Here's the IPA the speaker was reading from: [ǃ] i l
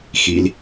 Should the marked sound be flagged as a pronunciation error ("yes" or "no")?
yes